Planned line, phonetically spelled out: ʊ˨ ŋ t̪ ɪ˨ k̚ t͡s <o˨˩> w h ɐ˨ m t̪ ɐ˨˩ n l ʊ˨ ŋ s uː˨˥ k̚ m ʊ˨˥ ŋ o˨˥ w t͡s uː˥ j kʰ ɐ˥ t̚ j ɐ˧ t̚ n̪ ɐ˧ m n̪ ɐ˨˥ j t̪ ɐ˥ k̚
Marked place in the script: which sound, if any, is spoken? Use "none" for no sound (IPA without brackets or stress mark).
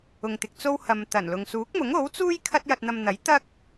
o˥